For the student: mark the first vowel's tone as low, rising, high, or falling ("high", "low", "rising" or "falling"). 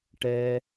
high